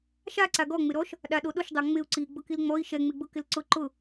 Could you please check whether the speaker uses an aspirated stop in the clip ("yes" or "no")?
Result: no